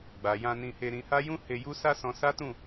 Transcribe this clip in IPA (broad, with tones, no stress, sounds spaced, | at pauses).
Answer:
ɡ͡b a˨ j ã˧ n ĩ˧ h e˧ ɾ ĩ˧ h a˦ j ũ˦ h e˧ j u˦ s a˦ s ɔ̃˧ s a˦ t ũ˦˨